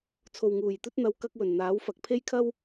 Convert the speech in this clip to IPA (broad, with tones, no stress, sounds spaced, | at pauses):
t͡sʰ o˨ w ŋ uː˨˩ j t̪ ɵ˥ t̚ n̪ ɐ˧ w k ɐ˥ k̚ w ɵ˨˩ n n̪ aː˨˥ w f ɐ˨ k̚ pʰ e˥ j kʰ ɐ˥ w